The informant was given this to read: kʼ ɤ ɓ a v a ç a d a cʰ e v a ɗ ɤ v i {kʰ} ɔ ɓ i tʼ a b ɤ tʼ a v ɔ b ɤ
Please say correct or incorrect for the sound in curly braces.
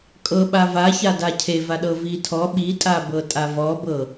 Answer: incorrect